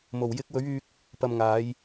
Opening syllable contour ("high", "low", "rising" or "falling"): low